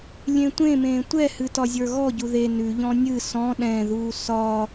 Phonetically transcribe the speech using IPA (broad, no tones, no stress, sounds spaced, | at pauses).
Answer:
lʲ ẽ tʷ ẽ m ẽː tʷ ɛ h ɨ t ɒ zʲ ə˞ ɣ ɔ ɟ u ð e n ʉ ʎ ɔ̃ nʲ ɨ s ɔ̃ ɗ ɛ̃ ð uː s ɒ